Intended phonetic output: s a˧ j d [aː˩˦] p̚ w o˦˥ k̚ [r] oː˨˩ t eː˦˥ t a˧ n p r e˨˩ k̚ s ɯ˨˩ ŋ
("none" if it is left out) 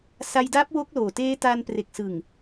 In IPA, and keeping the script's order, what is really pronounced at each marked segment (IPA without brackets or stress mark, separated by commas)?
aː˦˥, l